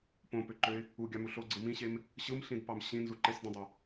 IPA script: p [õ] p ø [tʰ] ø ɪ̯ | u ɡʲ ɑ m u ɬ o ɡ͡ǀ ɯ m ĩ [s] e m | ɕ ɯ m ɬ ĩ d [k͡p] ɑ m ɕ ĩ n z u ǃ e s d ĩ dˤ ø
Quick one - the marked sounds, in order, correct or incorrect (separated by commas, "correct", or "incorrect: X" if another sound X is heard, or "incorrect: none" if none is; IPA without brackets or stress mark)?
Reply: correct, incorrect: ǃ, incorrect: ɕ, incorrect: p